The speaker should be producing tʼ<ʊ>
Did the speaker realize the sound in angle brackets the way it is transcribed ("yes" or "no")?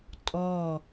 no